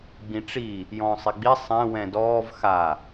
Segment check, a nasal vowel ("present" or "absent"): present